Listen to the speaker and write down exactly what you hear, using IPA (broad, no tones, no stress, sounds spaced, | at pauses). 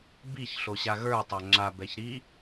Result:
b i ç ɬ o ɕ a ɣ ə˞ tˤ a ŋ͡ǁ a b ɛ ç ɾ i